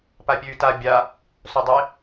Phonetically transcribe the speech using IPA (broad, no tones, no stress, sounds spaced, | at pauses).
p a pʲ ʉː t a bʲ a | s o dˤ e